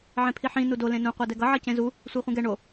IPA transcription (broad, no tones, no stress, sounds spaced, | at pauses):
ʕ ẽ pʰ i ħ ĩ n u d o l ẽ n ũ qʷ ɛ d ɛ ɡ ʌ ʕ ʌ c ẽ z u | sʷ ɛ χʷ ĩ ɡ ɛ ɳ o